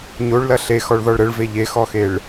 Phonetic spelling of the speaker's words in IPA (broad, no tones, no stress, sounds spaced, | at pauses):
ɲ o ɭ l ɐ ɬ e x ɔ ɭ ð ɔ ɭ ɾ ə ɭ v e ʎ e x ɔ x e ɭ